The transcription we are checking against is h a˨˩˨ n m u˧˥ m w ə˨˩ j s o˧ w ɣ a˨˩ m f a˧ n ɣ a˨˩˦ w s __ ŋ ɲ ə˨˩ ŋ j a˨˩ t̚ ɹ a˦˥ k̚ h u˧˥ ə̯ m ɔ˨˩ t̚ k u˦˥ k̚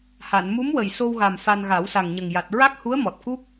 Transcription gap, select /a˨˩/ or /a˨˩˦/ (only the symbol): a˨˩